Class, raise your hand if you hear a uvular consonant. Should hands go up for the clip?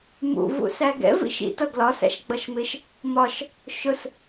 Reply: no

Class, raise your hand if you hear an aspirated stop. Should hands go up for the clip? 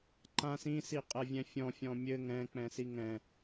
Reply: no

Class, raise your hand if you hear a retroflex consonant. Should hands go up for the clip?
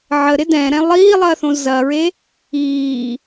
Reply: no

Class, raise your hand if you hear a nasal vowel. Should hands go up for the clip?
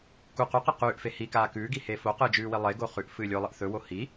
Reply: no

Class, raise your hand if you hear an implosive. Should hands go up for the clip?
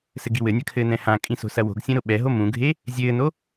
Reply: yes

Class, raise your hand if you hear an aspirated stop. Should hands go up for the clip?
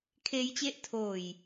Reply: yes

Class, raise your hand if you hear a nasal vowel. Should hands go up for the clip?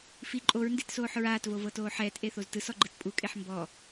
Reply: no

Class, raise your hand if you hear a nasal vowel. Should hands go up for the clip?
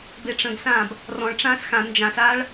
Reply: yes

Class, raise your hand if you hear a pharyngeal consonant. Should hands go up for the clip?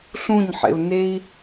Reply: yes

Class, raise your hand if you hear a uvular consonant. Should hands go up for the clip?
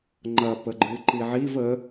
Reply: no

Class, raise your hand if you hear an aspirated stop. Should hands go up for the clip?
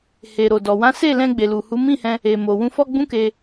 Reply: no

